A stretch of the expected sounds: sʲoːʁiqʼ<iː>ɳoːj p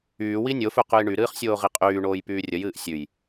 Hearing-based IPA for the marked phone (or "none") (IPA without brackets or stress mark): yː